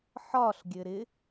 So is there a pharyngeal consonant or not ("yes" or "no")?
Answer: yes